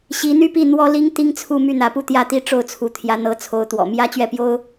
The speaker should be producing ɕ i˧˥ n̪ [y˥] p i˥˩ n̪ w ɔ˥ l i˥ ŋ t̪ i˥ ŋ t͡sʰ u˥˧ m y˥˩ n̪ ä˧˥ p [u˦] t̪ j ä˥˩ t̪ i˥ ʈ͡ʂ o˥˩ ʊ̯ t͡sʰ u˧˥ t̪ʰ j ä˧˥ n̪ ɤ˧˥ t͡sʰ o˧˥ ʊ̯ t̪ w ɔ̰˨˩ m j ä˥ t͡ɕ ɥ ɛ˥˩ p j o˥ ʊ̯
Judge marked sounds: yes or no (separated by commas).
yes, no